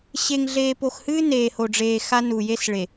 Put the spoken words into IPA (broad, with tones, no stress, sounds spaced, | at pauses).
ɕ e˨ ŋ ɮ eː˨ p o˨ x h ɨː˦ n eː˨ h o˨ ɖ͡ʐ eː˨ x a˦ n u˨ j e˦ s ɭ e˨